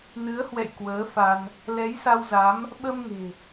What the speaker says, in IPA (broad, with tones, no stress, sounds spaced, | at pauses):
n ɨ˨˦ ə̯ h w ɛ̰˧˨ j k w əː˨˦ f a˧ n | l ɛ˨˦ j s a˧ w z a˨˦ m | ɓ ə˧ m ŋ e̤˨˩